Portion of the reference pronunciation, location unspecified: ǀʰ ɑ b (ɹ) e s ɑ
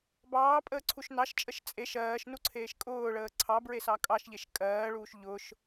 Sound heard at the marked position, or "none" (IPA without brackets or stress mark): ɹ